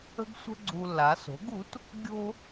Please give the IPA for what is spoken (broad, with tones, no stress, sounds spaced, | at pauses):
ə̤˥ ɡ sʷ ə̤˥ ɡ͡ǀ u˧ lː a˩˥ s o̤˩˥ ɡ u˩˥ t | ɡʲ o̤˥